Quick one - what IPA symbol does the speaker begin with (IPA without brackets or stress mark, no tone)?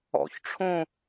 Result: ɔ̰